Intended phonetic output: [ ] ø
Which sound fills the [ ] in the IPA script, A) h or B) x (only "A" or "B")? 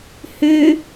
A